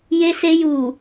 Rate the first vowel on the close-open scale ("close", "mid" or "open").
mid